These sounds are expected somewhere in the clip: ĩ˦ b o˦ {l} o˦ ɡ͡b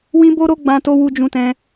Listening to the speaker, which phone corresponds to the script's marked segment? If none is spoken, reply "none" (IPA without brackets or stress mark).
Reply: ɾ